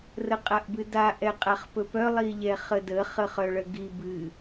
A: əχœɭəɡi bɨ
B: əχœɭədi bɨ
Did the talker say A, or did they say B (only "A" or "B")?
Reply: A